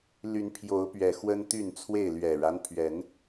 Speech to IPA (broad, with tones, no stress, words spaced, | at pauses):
ly˨˦npʰjo˨˦ʊ̯pɥɛ˨˩ xwə˦nt̪y˥˨nt͡sʰwe˥˨ɪ̯ lɥɛ˨˩ɻa˦npʰɥɛ˨˦n